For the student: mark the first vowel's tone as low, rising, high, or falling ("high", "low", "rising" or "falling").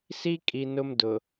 high